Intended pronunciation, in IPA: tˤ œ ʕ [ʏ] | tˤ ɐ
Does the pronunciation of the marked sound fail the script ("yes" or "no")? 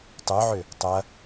no